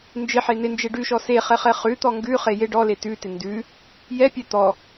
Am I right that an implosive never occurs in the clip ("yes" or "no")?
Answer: yes